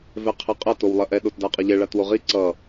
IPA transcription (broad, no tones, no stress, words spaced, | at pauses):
vɛqʰɛqʼɐ towlˠɐʔɛ ɗotdaqʼɐʎɛ ɭatwoʁi ǀʌ